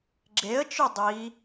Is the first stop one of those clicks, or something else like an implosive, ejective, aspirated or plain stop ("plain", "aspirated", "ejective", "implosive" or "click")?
click